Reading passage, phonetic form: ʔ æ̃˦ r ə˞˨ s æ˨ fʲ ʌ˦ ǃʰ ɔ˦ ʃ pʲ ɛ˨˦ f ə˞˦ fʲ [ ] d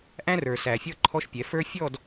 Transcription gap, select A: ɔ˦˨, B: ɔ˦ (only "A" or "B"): A